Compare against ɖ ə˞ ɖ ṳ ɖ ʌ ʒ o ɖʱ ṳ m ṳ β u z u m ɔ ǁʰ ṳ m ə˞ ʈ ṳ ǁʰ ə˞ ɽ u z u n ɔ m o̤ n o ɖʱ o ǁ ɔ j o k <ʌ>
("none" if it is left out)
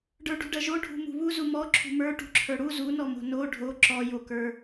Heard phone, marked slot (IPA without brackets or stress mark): ə˞